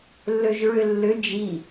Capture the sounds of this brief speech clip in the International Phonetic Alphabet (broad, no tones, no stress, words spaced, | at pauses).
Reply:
lːøʒɹʏlːʏ d͡ʒi